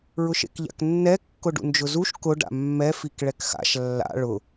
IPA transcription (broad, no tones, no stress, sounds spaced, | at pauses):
ɹ ʊ ʃ ḛ k ʎ a̰ k nː ɛ kː ʊ ɖ ṵ n d͡ʒ ʊ z u ʃ k ʊ ɖ a̰ mː ɛ f i k ɭ ɛ k x a̰ ʃ lː a̰ ɭ ʊ